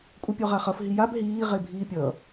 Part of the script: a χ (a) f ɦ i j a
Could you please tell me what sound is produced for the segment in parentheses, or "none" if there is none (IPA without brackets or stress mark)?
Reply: ʌ